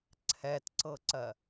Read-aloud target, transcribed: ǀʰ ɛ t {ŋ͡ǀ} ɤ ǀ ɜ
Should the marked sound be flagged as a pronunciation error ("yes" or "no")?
yes